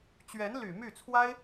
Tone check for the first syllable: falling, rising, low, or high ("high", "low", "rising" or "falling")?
rising